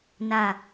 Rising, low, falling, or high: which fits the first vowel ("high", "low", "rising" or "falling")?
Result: low